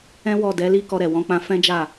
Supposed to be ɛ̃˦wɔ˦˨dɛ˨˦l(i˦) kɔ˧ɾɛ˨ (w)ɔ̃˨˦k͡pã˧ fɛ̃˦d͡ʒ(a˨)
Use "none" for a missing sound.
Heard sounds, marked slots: i˦, w, a˦˨

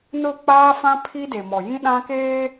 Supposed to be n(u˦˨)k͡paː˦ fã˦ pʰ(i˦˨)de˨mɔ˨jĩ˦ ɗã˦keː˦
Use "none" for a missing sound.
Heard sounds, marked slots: ʊ˦˨, i˦

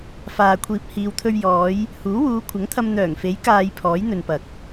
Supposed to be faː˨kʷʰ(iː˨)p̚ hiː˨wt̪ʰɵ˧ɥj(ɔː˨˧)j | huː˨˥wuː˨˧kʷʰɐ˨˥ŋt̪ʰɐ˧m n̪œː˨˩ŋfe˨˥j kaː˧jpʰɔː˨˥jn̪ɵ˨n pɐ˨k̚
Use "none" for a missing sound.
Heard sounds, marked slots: iː˨, ɔː˨˧

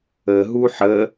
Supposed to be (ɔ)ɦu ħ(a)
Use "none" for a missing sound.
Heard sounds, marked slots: ə, ə

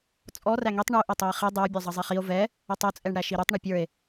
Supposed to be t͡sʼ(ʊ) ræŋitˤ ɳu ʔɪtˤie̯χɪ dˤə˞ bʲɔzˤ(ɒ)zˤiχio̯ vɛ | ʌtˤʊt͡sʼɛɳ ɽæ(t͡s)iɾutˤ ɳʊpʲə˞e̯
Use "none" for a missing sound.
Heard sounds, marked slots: ɔ, ʌ, ʃ

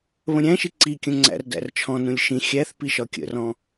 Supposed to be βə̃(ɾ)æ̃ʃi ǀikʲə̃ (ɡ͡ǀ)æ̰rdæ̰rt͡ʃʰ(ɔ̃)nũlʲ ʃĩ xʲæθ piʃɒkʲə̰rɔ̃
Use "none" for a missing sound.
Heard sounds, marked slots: ɾʲ, ŋ͡ǀ, ɔ̃

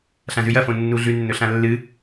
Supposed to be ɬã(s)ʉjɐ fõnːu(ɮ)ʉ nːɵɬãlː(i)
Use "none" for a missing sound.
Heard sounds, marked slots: z, ɮ, ɨ

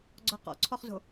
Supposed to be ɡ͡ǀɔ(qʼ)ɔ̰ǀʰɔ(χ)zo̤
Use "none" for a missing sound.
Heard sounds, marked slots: q, χ

